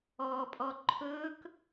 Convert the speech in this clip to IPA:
ɔː pʼ ɔ ǃʰ ɵː k

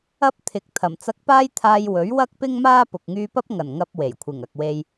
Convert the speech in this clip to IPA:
ɐ˥ p̚ t̪ʰ ɪ˨˥ k̚ t̪ʰ ɐ˨˩ m t͡s ɐ˧ k̚ p aː˥ j t̪ʰ aː˧ j w ɵ˨˥ ɥ w ɐ˥ k̚ p ɪ˥ ŋ m aː˥ p ʊ˨ k̚ ŋ yː˧ p ɐ˥ p̚ ŋ ɐ˨˩ n ŋ ɐ˧ p̚ w e˨˩ j kʷʰ ɪ˨˩ ŋ ɐ˨ k̚ w e˧ j

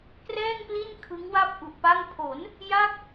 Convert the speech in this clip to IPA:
k r ɛː˥˩ ŋ p l i˥˩ n kʰ ɯ˦˥ ŋ w a˥˩ p̚ ʔ u˨˩ ʔ p a˥˩ ŋ pʰ o˩˦ n | j a˥˩ k̚

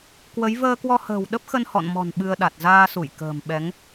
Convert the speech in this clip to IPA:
k w ə˨˦ j v əː˧ k w ɔ˧ h ə̤ː˨˩ w ɗ ə˦˥ p̚ x ə˧ n h ɔ̰˧˨ n m ɔ̤˨˩ n ɓ ɨ˧ ə̯ ɗ a˨˩ t̚ z aː˧ s u˧˩ j k ə̤ː˨˩ m ɓ ɛ˨˦ ŋ

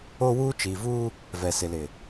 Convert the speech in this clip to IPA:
o˦ w uː˦ t͡ʃ iː˨ v uː˦ | v ɛ˨ s ɪ˨ l ɪ˨

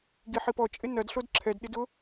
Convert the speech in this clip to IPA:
ɡ i ħ i p ɔ t͡ʃʼ ɪ n ɐ d ɬ o d ǁʰ ɛ d ɗ ɪ d ʊ

